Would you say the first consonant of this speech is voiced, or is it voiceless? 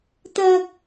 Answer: voiceless